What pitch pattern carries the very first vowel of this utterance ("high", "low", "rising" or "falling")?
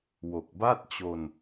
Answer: low